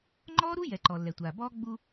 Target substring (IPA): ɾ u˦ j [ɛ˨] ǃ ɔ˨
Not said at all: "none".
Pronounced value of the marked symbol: ɛ˨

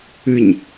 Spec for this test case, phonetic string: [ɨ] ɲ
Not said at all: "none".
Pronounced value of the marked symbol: ɨ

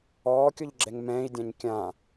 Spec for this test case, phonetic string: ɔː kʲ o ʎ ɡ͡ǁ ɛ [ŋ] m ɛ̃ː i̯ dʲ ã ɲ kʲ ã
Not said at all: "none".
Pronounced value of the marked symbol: ŋ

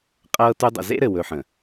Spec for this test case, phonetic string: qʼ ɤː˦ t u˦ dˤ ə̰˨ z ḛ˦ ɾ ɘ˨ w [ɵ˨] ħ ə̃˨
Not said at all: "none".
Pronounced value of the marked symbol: ɵ˨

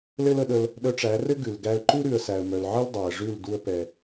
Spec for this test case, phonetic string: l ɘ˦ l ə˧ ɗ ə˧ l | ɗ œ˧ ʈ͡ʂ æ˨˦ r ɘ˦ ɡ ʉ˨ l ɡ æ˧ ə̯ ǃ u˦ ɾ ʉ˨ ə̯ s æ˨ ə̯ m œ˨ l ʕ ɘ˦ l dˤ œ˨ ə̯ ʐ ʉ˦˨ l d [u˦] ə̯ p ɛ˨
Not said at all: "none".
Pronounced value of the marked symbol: u˧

